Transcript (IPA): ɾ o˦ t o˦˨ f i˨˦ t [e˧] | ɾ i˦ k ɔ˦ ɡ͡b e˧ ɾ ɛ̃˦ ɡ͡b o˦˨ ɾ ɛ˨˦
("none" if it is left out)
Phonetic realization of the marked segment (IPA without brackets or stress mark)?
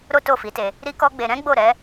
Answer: e˧